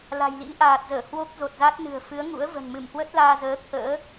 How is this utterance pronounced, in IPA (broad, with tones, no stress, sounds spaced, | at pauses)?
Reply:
l a̤˨˩ j l ḭ˧˥ ʔ aː˨˩ t̚ z əː˧˩ h w o˦˥ k̚ z o˨˩ t̚ z a˦˥ t̚ n ɨ̤˨˩ ə̯ f ɨ˨˦ ə̯ ŋ ṵ˧˥ ə̯ v ə̤˨˩ n m ɨ˧˩ m h w ə˦˥ t̚ l aː˧ z əː˨˦ t̪ʰ ə̰ː˧˥